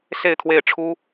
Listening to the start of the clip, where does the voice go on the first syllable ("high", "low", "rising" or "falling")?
falling